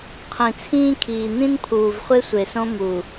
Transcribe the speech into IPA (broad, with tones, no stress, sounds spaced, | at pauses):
qʰ ĩ˨ t͡sʰ ĩː˦ kʰ iː˨ n̪ ĩ˦ n pʰ uː˨ v χʷ e˦ sʷ e˨ s õ˦ m u˨